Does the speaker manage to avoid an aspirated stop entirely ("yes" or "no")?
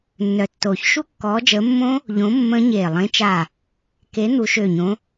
yes